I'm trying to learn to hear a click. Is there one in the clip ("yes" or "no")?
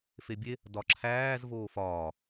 yes